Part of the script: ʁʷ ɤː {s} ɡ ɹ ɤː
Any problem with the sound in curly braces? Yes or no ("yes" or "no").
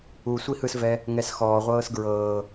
no